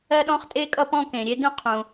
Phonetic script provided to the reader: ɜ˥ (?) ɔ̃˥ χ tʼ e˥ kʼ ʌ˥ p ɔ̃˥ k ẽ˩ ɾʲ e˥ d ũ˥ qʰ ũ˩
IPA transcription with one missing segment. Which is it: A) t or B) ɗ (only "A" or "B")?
B